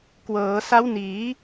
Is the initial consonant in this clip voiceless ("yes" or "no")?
yes